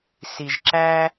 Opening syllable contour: low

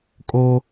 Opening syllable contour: high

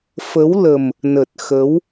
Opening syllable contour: rising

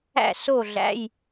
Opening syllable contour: falling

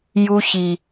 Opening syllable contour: high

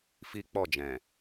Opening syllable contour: high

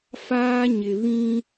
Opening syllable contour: high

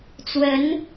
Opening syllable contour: rising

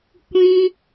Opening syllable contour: high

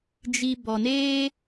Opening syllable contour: low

